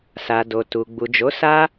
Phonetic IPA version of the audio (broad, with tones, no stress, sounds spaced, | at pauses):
s a˨ d o˨ t u˨ ɡ͡b u˨ d͡ʒ o˨˦ s a˦